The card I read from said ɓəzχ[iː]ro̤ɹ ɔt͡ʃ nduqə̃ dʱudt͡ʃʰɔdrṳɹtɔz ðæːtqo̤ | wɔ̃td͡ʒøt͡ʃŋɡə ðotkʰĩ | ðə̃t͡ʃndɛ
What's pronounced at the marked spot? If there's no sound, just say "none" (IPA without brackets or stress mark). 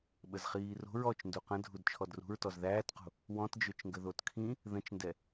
iː